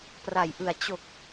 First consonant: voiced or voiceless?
voiceless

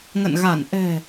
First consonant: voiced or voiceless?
voiced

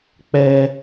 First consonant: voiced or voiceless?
voiceless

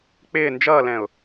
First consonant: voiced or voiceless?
voiceless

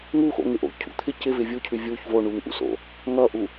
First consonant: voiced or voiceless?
voiced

